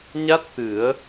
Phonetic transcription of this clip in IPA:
ɲa˦˥t̚ t̪ɨ˨˩˦ə̯

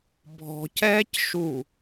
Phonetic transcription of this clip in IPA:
bʱɔ̤cɛːcʃu

